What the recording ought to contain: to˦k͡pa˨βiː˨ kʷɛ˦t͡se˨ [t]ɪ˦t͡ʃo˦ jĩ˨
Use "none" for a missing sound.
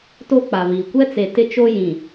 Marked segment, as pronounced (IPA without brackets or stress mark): t